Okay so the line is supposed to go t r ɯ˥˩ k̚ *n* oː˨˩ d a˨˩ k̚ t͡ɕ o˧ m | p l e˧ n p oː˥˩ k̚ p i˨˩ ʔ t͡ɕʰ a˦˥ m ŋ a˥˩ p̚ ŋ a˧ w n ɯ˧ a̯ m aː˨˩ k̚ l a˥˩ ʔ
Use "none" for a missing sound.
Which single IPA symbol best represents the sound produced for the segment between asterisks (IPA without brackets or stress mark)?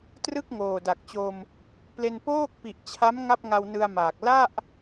ŋ